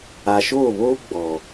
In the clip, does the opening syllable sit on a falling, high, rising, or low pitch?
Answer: low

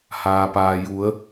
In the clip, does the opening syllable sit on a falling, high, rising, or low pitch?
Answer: low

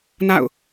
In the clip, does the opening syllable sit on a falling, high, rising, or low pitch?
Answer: falling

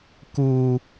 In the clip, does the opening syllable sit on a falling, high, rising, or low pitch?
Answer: high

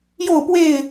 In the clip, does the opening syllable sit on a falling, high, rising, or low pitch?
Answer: falling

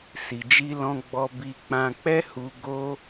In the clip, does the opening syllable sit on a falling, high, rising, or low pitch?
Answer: low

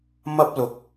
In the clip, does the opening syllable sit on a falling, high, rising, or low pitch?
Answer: high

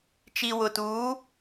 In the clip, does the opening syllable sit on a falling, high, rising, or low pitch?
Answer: low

